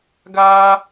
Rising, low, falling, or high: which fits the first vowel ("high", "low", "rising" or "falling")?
high